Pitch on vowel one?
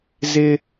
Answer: high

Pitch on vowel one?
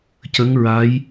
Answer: rising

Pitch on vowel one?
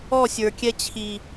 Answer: falling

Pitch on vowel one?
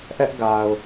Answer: high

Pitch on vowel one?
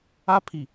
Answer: high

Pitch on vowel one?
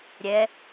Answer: rising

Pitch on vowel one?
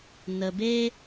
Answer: low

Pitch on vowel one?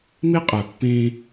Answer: high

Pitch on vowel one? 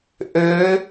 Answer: rising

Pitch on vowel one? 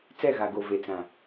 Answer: falling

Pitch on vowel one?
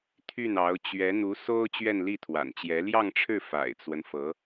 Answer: falling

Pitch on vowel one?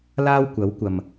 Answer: high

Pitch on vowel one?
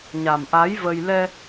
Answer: low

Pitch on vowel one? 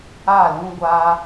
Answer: falling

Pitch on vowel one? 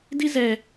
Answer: high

